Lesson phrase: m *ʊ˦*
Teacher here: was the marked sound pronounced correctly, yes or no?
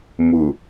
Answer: no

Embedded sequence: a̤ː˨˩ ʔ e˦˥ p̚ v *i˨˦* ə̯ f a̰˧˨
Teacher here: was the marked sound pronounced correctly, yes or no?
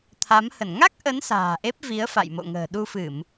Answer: yes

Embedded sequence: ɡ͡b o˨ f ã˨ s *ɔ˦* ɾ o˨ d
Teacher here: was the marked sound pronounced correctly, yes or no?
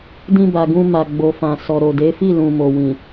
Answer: no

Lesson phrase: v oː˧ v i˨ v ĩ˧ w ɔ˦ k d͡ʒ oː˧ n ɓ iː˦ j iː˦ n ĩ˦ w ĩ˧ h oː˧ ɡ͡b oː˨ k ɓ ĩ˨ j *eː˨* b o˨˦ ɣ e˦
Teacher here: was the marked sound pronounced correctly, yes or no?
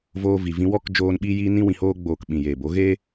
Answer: yes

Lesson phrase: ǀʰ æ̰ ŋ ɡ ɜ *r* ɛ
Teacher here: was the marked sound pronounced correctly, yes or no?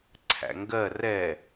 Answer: yes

